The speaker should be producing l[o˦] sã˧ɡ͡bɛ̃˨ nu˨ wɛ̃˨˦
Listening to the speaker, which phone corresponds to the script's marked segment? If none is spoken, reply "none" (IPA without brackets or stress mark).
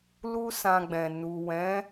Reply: u˦